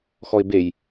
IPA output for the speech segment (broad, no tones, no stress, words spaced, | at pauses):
xɔɪ̯bej